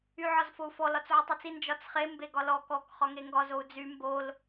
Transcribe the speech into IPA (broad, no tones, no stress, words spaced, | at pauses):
yʕɒzfou̯fɔ lɒt͡sʕytˤit͡si nd͡ʒɒt͡sχe mbeɡɒlɔ kɔk χɒŋeŋɡɒ zou̯d͡zy mbol